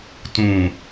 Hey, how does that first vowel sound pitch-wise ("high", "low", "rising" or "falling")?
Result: low